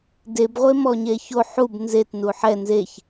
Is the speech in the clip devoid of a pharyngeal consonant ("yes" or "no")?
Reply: no